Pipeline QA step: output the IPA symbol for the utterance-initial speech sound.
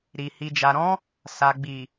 ɾ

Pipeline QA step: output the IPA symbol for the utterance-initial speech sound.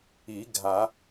i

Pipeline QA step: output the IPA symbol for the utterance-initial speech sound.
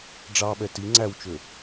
ɖ͡ʐ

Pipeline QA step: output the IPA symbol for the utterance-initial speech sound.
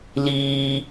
l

